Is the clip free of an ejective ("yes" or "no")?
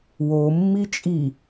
no